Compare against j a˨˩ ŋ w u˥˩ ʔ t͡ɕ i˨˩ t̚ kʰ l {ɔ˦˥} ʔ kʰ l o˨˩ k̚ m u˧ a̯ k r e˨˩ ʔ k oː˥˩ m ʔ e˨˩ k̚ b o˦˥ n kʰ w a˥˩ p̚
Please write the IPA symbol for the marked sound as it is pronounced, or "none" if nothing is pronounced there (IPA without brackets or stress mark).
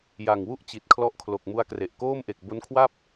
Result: ɔ˦˥